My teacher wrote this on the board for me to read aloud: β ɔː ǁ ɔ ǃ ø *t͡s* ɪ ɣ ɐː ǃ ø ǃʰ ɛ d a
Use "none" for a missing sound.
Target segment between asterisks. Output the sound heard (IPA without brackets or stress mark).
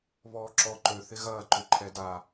θ